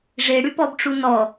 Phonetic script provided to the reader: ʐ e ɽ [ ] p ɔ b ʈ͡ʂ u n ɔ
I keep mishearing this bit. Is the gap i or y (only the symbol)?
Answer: y